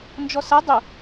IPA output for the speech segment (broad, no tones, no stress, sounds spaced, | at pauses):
n d͡ʒ ɔ s ʌ dˤ ʊ